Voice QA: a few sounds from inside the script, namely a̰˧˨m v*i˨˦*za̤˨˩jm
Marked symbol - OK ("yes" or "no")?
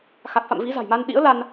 yes